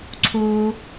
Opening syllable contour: low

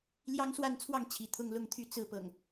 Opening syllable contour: high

